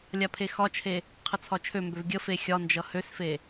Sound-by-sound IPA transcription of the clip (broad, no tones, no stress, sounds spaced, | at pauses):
lʲ a pʰ e x ɒ t͡ʃʰ e | qʰ ə t͡sʰ ɒ t͡ʃʰ ø m b ø v ɡʲ ə f e xʲ ɒ n d͡ʒ ʌ h ø s f e